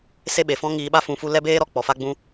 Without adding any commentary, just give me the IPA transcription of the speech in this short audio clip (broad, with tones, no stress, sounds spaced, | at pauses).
s e˦ ɓ e˨ f ɔ̃˦ ŋ iː˧ ɓ a˦ f ũ˧ f u˦ l ɛ˦ b eː˦ ɾ ɔ˦ k͡p ɔ˨ f a˦ ɡ͡b ũ˦